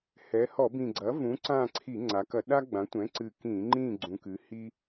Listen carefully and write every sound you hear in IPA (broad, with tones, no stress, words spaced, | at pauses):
hɛ˩˧ hɔ˧˩˧bĩ˨˩ɡ͡ǀɐ˩˥ vũ˩˥ǀã˦˨ǀʰi˧˩˧ ŋ͡ǀa˩˧kɐ˧˩˧ɗa˥ ɡ͡bã˩˥tʷɛ̃˩˥ ǀɨ˨˩ kĩ˧˩˧ŋ͡ǃĩ˦˨ ɡ͡ǀũ˩˧kɨ˩˧hi˥